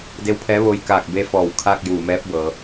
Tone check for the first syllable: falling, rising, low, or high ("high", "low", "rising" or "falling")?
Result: rising